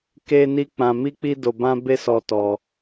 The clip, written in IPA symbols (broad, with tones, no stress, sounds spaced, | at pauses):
k e˦ n i˦ k͡p ã˧ m i˦ k͡p i˦ d o˧ b ã˦ b e˦ s ɔ˧ t ɔ˧